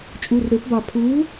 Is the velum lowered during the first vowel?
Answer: no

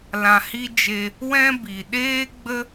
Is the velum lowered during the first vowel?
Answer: yes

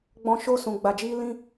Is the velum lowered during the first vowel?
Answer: yes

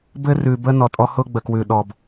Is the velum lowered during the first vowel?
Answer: no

